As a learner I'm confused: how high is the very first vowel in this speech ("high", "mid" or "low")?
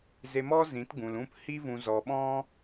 mid